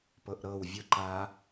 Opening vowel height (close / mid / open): mid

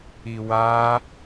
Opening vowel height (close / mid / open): close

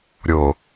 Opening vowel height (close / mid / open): mid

